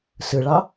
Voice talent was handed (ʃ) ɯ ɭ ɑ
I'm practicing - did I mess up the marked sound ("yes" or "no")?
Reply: yes